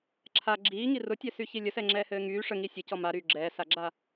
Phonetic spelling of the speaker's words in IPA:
ǁʰa ɡ͡ǁiː ŋirʊtʲɛsy çilʲəsɛŋ͡ǁɛː hɘːŋyː ʂəŋi sʲɘ cɔmaɾyː ɡ͡ǁɛːsaɡ͡ǁa

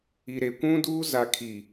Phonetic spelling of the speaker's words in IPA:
i˨ɾe˨kʷũ˦duː˦ za˨kʰi˨

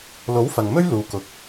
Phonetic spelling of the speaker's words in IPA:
lo˨˥wfɐ˨ŋmɵ˥ɥ luː˧kʊ˧k̚

